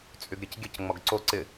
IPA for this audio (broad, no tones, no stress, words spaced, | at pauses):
t͡sʼyɡɾʲɘcɡʲɘc ŋ͡mɔɡǀo ǀɪ